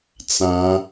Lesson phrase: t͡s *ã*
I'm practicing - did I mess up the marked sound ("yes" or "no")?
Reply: no